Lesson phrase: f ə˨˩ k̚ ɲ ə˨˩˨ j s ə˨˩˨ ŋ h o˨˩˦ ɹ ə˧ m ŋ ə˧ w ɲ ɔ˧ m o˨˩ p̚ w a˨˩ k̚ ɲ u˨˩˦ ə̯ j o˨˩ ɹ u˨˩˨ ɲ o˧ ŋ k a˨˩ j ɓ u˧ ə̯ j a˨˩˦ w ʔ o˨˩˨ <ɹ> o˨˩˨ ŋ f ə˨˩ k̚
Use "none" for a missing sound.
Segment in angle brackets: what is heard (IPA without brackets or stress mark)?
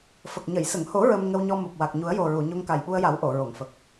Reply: ɹ